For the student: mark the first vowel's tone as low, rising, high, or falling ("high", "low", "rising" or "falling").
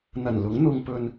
low